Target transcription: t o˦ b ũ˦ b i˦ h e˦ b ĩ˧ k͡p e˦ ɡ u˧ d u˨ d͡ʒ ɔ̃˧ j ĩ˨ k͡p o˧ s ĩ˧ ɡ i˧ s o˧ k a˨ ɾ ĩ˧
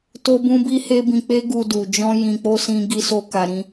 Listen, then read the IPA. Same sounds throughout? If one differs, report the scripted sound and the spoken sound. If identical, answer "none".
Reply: none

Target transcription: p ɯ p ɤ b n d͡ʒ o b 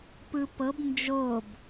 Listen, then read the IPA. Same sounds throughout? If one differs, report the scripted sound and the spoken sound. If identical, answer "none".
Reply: none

